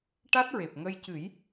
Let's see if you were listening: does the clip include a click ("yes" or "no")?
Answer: no